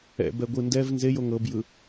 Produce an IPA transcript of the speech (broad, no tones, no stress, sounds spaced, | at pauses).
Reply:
ɛ̰ b ɛ ɡʷ ɯ n d ɛ v n z e j o ŋ ɤ b j ɯ